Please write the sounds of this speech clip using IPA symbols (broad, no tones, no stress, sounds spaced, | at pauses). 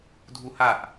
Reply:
dʱ u h a ʔ